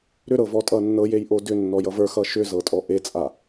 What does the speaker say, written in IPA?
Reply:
ɾʏɾɤvɔtʼʌ nːɤjejʔo dʏnːɔjʌ və˞xʌ ʃʏzɤtʼɔ ʔet͡sʼa

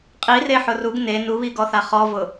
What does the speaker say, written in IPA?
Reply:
qʼireħʊ ruɡ ne nuβiɡɔθa χɔvʊ

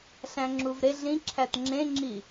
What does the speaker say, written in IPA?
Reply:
ɬæ̃ŋ͡ǁuvɾe ɮĩǁʰæt ŋ͡ǁẽŋ͡ǁi

